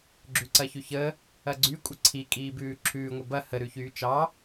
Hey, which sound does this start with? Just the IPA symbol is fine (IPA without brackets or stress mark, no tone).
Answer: ɡ͡ǁ